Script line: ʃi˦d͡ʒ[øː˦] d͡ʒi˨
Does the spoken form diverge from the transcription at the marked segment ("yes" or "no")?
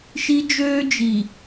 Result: no